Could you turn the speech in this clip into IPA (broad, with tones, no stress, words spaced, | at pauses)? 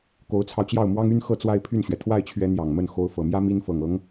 ko˧˥ʊ̯t͡sʰɑ˧ʊ̯t͡ɕjɑ˥˩ʊ̯ mwɑ˥ŋy˥n xɤ˥˧t͡swa˥˧ɪ̯pʰy˥˩nɕɥɛ˩ t̪ʰwa˥˩ɪ̯t͡ɕʰɥɛ˧˥ n̪jɑ˨˩ŋmə˥˩n xo˧˥ʊ̯fɤ˨˩mjä˥ mi˥n fɤ˨˩ŋɤ˧˥ŋ